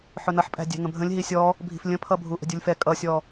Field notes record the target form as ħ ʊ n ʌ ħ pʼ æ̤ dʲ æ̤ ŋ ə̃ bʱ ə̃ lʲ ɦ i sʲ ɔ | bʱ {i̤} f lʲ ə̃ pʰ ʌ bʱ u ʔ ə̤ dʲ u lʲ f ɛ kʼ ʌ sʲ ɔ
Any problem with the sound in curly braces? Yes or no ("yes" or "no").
no